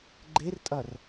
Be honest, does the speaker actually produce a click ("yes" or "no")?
yes